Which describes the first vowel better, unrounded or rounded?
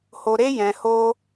rounded